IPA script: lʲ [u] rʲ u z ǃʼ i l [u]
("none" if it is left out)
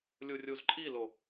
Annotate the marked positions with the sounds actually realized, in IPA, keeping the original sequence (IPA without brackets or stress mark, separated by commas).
u, o